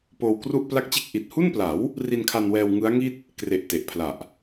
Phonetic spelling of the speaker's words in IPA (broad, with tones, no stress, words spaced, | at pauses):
poː˧wkru˥˩ʔ pla˦˥k̚t͡ɕe˦˥k̚ ʔi˨˩t̚hu˥˩npla˩˦w | ri˧nkʰa˧nwɛː˧w ŋɯ˦˥a̯ŋi˥˩t̚ | kre˨˩ʔ te˨˩ʔpʰla˨˩ʔ